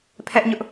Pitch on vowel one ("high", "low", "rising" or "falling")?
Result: high